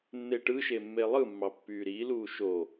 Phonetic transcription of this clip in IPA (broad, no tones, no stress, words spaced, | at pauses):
nːeʈɯʃe mːelˠɯmːɑ pːyːɾiːluː ʃo